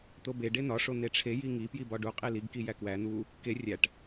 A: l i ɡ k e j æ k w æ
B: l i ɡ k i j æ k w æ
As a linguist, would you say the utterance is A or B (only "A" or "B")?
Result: B